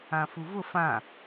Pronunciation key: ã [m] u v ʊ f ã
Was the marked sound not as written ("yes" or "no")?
yes